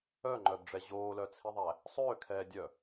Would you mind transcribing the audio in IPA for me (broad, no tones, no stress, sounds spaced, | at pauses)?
œ ŋ͡ǃ œ b ɖ͡ʐ ɛ ʑ oː l œ t͡sʰ i ðˤ æ | sˤ øː kʰ ɛː dʲ œ